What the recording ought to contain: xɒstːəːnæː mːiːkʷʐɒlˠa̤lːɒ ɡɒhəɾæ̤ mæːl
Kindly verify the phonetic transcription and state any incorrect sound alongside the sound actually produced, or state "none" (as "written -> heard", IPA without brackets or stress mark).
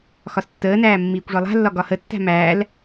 ɾ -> tː